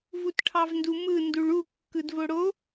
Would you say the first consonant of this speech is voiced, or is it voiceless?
voiced